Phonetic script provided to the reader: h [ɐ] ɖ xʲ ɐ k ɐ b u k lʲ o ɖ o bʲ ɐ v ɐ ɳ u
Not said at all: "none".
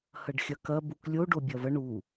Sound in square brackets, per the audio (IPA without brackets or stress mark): ɐ